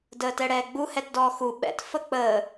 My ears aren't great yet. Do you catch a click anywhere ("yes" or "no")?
no